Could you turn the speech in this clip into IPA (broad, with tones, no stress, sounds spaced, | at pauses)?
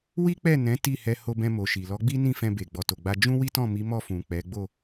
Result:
w i˦ k͡p ɛ˦˨ n ɛ̃˨˦ t i˦˨ h ɛ˧ h o˧ b ɛ̃˧ m o˨ ʃ i˨ l ɔ˨˦ ɡ͡b i˦ n ĩ˦˨ f ɛ̃˧ b e˨ ɡ͡b ɔ˨ t o˨ ɡ͡b a˧ d͡ʒ ũ˦ w i˦ t ɔ̃˦˨ m i˨˦ m ɔ˦˨ f ũ˨ k͡p ɛ˨˦ ɡ͡b o˦˨